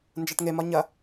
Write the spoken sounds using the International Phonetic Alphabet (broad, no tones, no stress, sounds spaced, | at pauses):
n d͡ʒ a ʈ ŋ e m ɒ ɲ ɐ